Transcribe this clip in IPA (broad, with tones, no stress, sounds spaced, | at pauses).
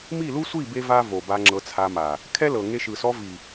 m i˦˨ l u˦ sʷ i˦˨ b e˦ v a˦ v o˨ b a˧ ŋ͡ǁ ɤ˧ t͡sʰ a˧ m a˨ | kʰ ɛ˦ l ɤ˨ ŋ e˧ ʃ ɯ˨ s ɔ˧ v i˨